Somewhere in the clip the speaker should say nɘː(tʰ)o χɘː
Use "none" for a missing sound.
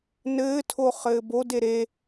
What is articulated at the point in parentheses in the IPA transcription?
tʰ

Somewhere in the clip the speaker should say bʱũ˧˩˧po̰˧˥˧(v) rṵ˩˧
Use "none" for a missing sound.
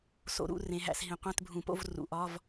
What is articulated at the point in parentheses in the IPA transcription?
v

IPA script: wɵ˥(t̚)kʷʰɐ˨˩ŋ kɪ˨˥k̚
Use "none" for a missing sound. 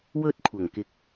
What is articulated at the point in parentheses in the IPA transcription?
t̚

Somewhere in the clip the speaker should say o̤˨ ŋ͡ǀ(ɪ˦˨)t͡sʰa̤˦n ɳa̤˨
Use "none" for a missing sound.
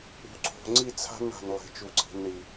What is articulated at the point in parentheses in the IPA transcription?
i˦˨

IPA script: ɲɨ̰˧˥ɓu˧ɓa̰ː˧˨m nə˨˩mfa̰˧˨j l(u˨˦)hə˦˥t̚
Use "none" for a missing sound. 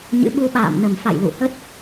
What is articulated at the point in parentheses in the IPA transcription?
ṵ˧˨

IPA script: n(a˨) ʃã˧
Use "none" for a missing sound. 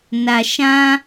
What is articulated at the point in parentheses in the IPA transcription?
a˨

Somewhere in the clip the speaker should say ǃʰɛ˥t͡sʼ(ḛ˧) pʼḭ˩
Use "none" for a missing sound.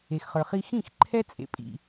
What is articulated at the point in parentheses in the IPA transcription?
ḛ˧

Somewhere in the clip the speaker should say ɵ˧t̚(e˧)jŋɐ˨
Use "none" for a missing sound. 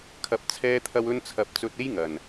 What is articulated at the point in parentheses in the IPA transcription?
e˥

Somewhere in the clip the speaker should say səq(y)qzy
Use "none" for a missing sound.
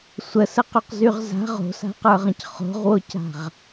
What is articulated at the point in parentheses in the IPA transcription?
y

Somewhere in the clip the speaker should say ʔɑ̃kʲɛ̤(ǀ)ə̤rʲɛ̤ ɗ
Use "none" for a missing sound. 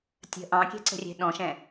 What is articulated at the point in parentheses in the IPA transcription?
ǀ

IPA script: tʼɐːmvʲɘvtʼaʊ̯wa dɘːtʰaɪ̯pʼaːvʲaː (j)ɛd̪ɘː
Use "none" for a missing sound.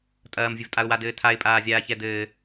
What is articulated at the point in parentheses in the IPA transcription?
ç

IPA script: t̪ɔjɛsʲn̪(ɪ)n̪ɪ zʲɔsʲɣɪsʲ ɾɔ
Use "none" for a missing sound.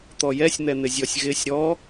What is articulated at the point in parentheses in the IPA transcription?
ɛ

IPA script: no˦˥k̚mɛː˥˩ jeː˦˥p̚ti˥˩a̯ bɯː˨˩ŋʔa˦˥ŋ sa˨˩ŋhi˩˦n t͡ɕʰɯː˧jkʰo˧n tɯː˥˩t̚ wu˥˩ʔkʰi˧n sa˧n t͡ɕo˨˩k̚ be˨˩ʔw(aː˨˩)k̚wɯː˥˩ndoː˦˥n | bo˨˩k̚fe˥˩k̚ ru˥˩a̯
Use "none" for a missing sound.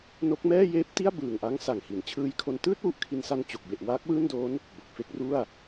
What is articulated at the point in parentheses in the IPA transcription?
aː˦˥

